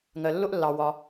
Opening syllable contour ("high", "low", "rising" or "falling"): low